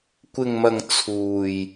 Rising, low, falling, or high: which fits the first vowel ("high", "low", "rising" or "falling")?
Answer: low